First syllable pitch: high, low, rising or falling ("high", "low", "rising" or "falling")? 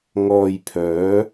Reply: low